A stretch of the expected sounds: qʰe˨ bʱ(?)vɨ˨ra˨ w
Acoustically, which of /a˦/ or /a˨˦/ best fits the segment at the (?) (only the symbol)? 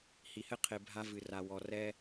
a˦